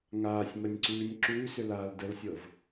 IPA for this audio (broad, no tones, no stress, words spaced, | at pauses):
ŋaːsʲmənʲǀʉːnʲ ǁʉːsʏlaːl dəlsʲɤv